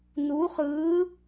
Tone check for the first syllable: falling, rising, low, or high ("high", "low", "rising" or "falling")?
rising